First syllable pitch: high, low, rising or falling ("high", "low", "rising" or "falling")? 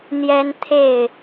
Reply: high